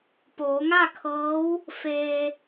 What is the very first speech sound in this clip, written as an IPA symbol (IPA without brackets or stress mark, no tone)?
p